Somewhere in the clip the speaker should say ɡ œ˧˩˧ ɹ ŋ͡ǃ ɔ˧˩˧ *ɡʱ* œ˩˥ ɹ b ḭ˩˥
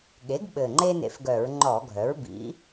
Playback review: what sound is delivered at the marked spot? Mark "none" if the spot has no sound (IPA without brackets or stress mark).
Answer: ɡʱ